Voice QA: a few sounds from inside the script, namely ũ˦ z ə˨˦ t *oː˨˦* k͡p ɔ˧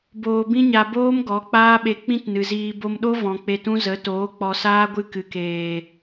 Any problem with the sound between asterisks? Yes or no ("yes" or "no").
no